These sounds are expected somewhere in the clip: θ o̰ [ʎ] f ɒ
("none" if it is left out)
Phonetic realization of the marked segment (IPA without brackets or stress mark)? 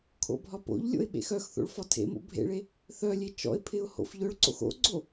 ɭ